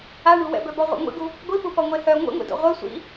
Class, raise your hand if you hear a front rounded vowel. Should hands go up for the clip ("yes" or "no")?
yes